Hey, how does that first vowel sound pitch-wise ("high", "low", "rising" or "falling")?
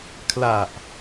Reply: low